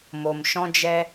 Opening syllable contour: low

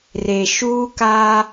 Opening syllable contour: low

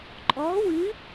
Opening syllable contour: rising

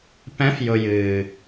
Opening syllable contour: rising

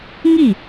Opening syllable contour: falling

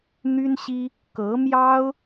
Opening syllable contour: high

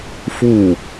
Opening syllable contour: falling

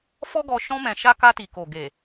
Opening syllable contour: high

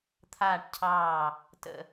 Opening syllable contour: falling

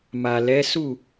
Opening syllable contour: low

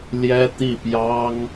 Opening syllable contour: high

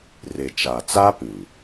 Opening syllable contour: low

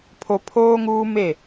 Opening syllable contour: low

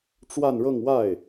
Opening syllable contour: falling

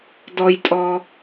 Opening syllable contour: low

